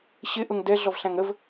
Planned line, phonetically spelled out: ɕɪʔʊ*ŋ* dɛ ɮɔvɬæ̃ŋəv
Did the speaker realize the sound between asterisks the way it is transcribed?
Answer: yes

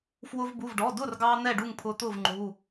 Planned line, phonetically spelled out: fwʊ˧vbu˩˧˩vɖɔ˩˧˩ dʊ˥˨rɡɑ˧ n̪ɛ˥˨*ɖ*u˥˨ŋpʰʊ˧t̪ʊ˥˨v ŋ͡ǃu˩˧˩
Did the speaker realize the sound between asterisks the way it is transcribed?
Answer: yes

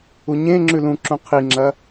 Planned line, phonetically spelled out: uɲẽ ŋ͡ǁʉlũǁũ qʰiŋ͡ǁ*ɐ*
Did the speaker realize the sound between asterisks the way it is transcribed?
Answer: yes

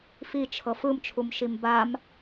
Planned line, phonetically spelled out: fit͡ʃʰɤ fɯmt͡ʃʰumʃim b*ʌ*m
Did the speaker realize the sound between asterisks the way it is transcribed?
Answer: no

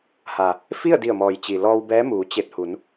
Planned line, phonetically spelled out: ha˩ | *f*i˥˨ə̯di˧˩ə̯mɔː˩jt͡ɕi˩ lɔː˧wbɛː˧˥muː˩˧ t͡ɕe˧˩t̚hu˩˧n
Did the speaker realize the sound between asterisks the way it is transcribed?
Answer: yes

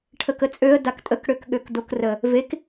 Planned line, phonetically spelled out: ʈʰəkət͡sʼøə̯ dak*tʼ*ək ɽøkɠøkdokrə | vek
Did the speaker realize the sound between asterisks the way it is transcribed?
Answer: yes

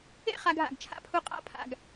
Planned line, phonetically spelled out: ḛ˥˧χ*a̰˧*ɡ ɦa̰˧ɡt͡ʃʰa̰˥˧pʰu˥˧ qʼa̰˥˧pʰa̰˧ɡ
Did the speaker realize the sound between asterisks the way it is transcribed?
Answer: no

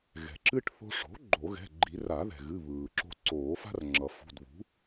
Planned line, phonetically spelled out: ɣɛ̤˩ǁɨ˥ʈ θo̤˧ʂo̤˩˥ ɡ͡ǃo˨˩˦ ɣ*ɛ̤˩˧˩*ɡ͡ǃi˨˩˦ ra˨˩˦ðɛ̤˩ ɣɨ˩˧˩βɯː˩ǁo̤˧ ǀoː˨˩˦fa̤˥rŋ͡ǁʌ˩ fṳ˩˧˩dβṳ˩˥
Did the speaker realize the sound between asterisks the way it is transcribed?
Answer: yes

